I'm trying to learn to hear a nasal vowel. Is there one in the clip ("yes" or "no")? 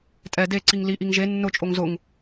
no